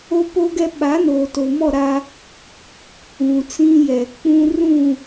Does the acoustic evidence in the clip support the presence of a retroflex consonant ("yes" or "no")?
no